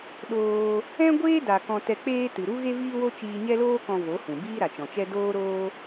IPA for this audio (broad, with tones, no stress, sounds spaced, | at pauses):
ɗ oː˧ | ɛ̃˦ ɡʷ eː˦ d a˨ k ɔ̃˧ t ɛ˧ k͡p eː˦ t ɨ˨ ɾ u˦ ɣ e˦ v iː˦ w o˦ t͡ʃ iː˧ ɲ ɛ˦ l oː˦ k ɔ̃˧ v o˨˦ h ũ˨ b iː˦ ɾ a˨ t͡ʃ ɔ̃˨ t͡ʃ ɛ˦ d oː˦ ɾ oː˦